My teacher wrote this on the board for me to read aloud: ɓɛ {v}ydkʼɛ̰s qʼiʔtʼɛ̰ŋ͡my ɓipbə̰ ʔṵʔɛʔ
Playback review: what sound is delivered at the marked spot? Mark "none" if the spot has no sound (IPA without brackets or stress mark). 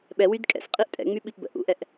w